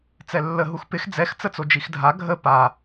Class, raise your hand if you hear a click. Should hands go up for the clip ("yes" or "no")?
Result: no